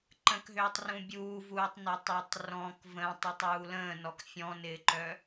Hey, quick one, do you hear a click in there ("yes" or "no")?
yes